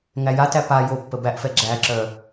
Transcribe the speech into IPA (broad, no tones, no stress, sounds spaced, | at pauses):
ŋ æ j a t æ p a j o pː ə b æ ʔ f ɛ ɡ͡ǁ æ ǁ œ